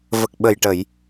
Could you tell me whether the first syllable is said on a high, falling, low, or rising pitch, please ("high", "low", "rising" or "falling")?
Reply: low